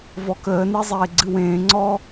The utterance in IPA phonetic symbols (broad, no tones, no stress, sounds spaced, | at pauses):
v ɔ k əː n e zˤ eː ɡ͡ǀ ɨ w ẽː ŋ͡ǀ ɔ